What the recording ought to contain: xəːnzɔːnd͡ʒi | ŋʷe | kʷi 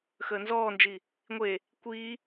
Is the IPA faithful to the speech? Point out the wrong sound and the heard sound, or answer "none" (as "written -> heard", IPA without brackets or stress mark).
none